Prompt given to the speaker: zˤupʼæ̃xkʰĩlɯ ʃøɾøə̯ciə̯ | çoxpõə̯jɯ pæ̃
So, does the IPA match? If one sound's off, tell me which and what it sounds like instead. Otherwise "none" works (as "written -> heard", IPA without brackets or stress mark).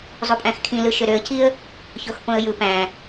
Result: none